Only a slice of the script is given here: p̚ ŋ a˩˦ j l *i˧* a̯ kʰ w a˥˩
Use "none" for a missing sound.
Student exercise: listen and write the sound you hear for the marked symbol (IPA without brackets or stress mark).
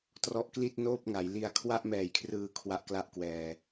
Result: i˧